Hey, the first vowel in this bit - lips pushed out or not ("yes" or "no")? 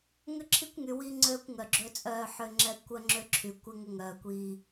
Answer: yes